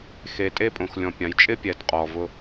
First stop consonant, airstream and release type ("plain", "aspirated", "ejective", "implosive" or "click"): ejective